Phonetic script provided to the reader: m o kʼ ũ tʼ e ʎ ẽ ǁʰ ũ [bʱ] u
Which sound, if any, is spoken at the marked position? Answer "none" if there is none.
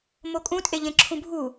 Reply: bʱ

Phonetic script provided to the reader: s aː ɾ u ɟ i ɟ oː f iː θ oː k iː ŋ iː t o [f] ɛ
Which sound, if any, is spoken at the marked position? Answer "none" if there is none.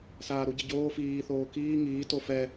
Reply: f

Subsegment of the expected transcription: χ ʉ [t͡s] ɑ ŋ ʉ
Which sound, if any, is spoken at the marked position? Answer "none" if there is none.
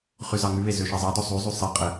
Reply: z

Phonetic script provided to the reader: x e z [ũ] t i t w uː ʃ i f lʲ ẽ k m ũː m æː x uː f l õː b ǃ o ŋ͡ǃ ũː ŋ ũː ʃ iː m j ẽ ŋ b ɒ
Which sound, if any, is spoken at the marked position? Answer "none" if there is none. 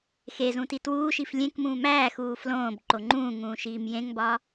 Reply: ũ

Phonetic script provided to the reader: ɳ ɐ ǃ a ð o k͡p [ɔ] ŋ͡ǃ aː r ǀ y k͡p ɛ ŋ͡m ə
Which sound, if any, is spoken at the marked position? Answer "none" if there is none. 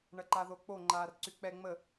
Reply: o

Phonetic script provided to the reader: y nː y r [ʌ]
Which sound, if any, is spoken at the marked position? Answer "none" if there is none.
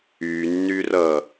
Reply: ʌ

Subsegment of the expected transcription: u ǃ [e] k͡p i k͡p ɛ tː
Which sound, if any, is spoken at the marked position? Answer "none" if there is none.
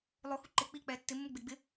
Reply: e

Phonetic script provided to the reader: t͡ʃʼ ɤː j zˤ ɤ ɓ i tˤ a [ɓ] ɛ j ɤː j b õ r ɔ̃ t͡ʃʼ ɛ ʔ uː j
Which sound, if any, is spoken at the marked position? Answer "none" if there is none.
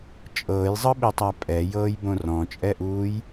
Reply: pʼ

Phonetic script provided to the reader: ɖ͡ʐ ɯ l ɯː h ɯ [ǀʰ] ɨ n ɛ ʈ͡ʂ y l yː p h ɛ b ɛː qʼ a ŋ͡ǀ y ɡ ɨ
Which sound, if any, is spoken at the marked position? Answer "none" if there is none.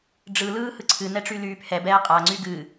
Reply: ǀʰ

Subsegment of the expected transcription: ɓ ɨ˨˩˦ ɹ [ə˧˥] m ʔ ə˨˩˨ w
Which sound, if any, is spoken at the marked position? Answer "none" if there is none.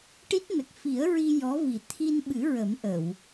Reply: ə˨˩˦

